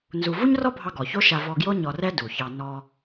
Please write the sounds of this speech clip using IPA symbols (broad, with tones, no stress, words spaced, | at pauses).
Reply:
nzu˧ vu˥ɲrɔ˥bʱɑ˧ ɡɔ˩ço˥ʃa˧ vɔ˧ɡjo˥ ɲɔ˧rɛ˥ du˩çɑ˧ nɔ˧